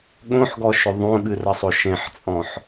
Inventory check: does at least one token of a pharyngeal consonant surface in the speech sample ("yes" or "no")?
yes